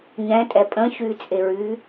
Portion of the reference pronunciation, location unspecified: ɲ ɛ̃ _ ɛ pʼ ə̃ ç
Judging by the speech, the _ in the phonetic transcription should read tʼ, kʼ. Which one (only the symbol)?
tʼ